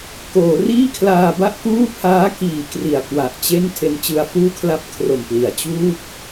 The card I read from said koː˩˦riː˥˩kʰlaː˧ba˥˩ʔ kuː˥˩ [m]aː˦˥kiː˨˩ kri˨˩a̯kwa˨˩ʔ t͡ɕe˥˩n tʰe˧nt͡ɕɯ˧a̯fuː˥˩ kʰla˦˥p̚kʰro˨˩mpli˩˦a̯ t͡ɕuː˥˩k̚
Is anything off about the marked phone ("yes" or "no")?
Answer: yes